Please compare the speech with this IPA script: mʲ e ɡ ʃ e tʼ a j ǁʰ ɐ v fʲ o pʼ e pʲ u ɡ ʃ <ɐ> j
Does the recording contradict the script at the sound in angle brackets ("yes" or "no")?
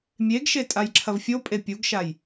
yes